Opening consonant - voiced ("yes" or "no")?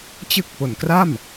no